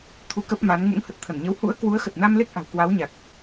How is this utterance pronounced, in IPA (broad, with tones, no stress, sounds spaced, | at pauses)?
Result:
t̪ʰ u˧ k ə˦˥ p̚ m a˨˦ n ŋ ṵ˧˥ ŋ h ə˨˩ t̚ t̪ʰ ə˧˩ n ɲ ə˨˦ w h ṵ˧˥ ə̯ k w u˨˦ ə̯ x ə˨˩ t̚ n a˧ m l e˦˥ k̚ ʔ a̤˨˩ w k w a˨˦ w ɲ a˨˩ k̚